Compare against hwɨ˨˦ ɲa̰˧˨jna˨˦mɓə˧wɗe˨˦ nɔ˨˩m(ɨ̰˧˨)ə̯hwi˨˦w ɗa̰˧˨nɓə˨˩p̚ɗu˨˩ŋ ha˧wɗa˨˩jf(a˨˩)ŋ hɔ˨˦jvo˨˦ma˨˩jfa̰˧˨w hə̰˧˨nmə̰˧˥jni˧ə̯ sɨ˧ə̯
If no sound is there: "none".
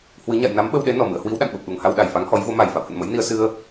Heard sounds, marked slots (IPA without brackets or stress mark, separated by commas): ɨ̰˧˨, a˨˦